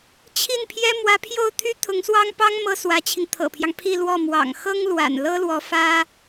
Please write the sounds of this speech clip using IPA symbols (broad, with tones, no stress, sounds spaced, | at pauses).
t͡ɕʰ i˥˩ n pʰ j ɛ˥ m w ä˧˥ pʰ j o˥˩ ʊ̯ t̪ʰ y˥ t̪ʰ ʊ˧˥ ŋ s w ɑ˥ ŋ p ɑ˥ ŋ m ɤ˥ s w ä˧˥ t͡ɕʰ i˧ ŋ t̪ʰ ɤ̰˨˩ pʰ j ɑ˦ ŋ pʰ i˥˧ l w ɔ˥˩ m w ɑ̰˨˩ ŋ x ɤ˥ ŋ l w a̰˨˩ n l ɤ˥ l w ɔ˧˥ f ä˥